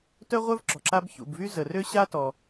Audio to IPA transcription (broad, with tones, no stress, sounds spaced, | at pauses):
t œ˥ ʁʷ œ˥ v ǁ ɔ̤˩ ǁ a˥ b ç ṵ˩ b v y˥ z ə˩ r ø˥ ɕ a˥ t ɔ˩